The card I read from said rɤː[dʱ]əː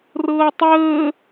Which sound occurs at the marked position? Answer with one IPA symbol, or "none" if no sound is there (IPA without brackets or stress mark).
tˤ